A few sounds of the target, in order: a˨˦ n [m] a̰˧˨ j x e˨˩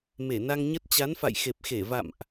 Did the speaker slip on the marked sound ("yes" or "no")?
yes